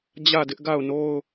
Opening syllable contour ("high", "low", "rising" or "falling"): falling